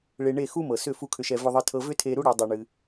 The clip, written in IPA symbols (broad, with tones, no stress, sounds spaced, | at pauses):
ɭ e˧ ɳ e˥˩ x u˥ m ɤ˩ s ʏ˥˩ f u˥˩ kʰ ʏ˧ ʃ ɛ˧ v ʏ˧ ðˤ ɨ˧ tʰ ɤ˧ v ʏ˥ tʰ e˧ ɾ u˥ ɽ ɛ˩˥ dˤ u˩ ɳ ɨ˩